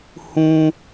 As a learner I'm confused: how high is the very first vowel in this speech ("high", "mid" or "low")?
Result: high